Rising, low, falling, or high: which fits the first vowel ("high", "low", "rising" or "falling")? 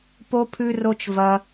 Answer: high